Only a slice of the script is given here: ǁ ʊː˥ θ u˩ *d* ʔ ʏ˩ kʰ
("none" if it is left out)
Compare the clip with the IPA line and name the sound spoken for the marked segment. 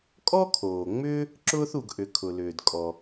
ɡ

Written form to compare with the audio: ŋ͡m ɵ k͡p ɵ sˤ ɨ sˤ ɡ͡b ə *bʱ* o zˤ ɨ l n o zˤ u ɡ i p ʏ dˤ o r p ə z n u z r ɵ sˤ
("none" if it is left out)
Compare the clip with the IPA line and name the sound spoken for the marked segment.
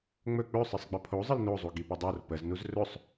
pʰ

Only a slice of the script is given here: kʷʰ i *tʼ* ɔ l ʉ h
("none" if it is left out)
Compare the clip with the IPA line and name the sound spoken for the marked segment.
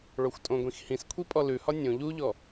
pʼ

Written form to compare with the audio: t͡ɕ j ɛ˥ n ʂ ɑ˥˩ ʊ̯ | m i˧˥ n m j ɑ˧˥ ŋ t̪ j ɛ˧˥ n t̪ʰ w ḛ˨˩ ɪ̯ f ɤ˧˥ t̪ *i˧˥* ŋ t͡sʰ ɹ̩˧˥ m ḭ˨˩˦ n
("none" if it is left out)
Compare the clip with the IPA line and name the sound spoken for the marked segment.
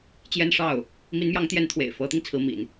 i˧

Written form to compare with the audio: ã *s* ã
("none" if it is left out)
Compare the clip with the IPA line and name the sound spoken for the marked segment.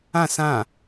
s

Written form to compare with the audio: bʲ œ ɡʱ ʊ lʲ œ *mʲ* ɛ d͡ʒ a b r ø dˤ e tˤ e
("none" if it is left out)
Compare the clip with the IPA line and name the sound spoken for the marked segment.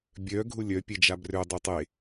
pʲ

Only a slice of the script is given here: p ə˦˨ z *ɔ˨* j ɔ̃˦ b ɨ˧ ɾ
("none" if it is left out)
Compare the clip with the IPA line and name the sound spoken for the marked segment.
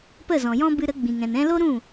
ɔ̃˨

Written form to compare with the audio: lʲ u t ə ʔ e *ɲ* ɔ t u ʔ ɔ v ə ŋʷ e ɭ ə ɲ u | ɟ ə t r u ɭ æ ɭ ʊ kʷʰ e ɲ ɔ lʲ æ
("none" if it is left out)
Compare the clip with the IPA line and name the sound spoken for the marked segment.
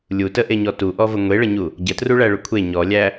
ɲ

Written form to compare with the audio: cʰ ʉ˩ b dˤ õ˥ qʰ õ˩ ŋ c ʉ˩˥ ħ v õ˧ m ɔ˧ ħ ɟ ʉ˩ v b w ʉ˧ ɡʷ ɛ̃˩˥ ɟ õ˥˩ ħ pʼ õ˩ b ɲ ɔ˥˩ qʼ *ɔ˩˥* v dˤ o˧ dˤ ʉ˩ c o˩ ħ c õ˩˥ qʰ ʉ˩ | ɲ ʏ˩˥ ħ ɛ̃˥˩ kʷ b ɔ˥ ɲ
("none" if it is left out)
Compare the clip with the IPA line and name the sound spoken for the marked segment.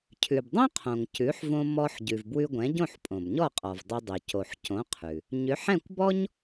ɔ˩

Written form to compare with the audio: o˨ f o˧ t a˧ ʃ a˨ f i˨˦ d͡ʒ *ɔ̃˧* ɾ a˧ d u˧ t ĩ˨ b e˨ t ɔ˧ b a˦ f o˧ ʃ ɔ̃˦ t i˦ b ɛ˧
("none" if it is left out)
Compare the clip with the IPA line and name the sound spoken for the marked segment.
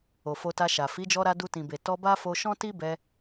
ɔ˧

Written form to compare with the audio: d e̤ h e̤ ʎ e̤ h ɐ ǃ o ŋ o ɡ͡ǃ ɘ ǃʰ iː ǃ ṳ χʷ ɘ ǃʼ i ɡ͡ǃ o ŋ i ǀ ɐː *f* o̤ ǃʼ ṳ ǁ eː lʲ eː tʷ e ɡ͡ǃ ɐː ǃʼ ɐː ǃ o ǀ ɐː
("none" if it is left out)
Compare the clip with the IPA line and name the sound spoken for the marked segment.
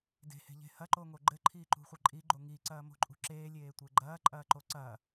m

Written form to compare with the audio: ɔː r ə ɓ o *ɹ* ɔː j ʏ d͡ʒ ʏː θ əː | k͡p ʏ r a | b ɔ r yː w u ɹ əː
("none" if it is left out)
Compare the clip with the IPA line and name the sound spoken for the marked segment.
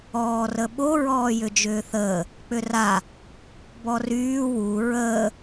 ɹ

